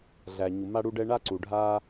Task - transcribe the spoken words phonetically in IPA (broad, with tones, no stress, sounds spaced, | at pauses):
ɮ æ˩ ɲ u˩ m a˧ ɽ u˧ ɖ ɛ˧ ɳ a˧ ǀ u˩ ɖʱ a˧